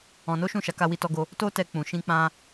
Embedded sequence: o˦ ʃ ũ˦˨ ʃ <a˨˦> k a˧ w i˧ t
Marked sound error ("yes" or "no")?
no